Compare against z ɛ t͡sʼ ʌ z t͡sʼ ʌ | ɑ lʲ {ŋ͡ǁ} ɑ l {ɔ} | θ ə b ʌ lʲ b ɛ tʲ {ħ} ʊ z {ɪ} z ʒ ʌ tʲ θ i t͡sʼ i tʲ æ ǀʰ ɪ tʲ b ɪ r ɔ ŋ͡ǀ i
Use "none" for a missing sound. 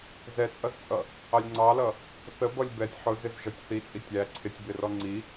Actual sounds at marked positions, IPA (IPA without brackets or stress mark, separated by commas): ŋ͡ǀ, ʌ, ħ, ɪ